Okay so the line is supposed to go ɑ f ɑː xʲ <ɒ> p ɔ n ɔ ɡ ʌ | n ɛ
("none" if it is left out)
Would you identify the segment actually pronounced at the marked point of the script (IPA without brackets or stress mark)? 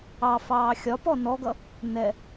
ɒ